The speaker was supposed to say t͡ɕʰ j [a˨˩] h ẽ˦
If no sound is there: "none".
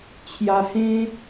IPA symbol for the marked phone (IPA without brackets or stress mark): a˧